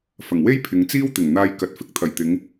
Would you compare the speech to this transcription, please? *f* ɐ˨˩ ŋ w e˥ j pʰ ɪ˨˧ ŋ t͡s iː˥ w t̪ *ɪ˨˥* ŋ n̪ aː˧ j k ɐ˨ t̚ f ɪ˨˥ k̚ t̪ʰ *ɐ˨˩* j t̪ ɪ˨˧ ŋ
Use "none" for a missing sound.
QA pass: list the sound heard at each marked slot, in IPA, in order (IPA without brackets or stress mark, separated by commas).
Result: f, ɪ˨˩, ɐ˨˩